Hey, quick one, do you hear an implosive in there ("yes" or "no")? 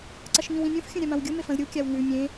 no